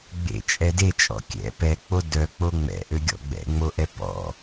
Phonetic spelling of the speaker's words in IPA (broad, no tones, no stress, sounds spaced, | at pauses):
ɡ͡b ḛ t͡ʃʼ ɛ d e t͡ʃʼ ɔ̰ kʲ ɛ̰ p ɛ k͡p o d œ k͡p o ŋ͡m ɛ̰ ʔ ø ɡʲ ɔ̰ ɡ͡b ɛ̰ ŋ͡m o ʔ ɛ p ɔ̰